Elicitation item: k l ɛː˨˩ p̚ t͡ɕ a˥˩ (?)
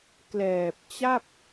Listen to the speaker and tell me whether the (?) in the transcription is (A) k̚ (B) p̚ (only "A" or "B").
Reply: B